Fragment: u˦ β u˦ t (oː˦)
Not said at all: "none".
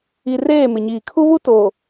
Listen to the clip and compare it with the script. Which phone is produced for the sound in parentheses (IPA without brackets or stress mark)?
oː˨